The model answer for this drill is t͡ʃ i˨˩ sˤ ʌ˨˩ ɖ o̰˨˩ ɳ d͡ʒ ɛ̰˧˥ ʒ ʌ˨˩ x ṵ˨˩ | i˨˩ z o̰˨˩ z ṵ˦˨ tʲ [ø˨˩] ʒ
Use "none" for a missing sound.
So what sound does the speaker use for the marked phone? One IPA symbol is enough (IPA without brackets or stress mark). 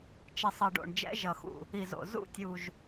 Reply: u˨˩